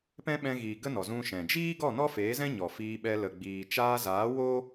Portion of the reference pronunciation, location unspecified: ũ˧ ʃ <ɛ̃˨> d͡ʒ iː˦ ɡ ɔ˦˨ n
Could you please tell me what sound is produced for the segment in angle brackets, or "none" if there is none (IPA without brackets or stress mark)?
ɛ̃˨